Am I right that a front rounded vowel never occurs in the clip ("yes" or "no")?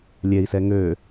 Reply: no